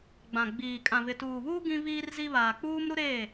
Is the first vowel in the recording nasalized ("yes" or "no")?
yes